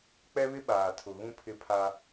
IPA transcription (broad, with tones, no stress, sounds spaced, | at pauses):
k͡p ɛ˦ β ɪ˦ ɓ aː˨ tʰ ʊ˨ ɣ ũ˦ pʰ ɪ˦ pʰ a˦